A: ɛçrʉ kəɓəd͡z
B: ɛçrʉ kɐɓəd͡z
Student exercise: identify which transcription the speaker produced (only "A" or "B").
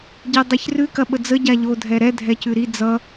B